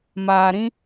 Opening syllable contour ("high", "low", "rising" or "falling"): low